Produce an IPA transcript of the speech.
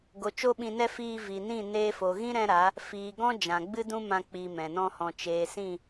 ɡo˨ t͡ʃo˦ɓĩ˧nɛ˦ fiː˧vi˨nĩ˦˨ neː˧fo˨ɣĩ˦ ɾɛ̃˦ɾa˨˦ | fiː˨ɡɔ̃˦ d͡ʒã˨ɡ͡bɨ˦dũ˦mã˧ k͡pi˧mɛ̃˨nɔ̃˦hɔ̃˧ t͡ʃeː˨sĩ˦˨

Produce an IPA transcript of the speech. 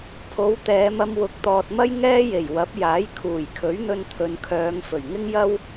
pʰo˨˥w t̪ɛː˨˧mɐ˧mwʊ˨˥k̚ t̪ɔː˨t̚mɐ˥j ŋɛː˥je˨˩j wɐ˨˥p̚jaː˨˥j kʰuː˨˩jkʰɵ˨˥ɥn̪ɵ˧n t̪ʰɵ˨nkʰœː˨˧ŋ fɵ˨˩ɥŋɪ˥ŋjɐ˥w

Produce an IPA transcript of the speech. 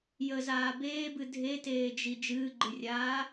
jəzaː beːbɨ dʱeteːd͡ʒi d͡ʒɨːɡ͡ǃɨrʲaː

